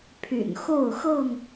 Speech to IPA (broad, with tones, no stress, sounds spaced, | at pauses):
pʰ y̰˨˩ n x o˥˨ ʊ̯ x ɤ˥˨ ŋ